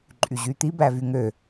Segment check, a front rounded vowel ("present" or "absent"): present